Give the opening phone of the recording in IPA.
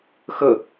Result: x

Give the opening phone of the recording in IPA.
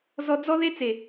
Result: z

